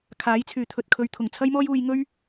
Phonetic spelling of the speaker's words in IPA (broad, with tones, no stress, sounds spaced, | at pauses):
kʰ aː˨˥ j t͡sʰ yː˨ t̪ʰ ɵ˧ t̚ kʰ ɵ˧ ɥ t̪ʰ ʊ˨˩ ŋ t͡sʰ ɐ˥ j m ɔː˥ j uː˧ j ŋ ɵ˥ ɥ